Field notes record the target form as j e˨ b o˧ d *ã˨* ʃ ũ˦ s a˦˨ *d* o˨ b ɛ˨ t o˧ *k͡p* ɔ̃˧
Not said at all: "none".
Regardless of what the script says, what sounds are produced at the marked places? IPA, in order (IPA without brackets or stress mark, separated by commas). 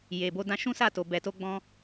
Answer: ã˧, t, ɡ͡b